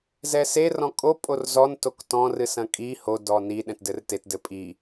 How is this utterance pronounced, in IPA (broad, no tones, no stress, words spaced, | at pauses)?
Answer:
zɛse rɔ̃kʼo pʼorzɔn toktɔ̃ rɨsɐ̃kʼi ho dɔni ɗɛ̃tdɘrtet dɘpʼi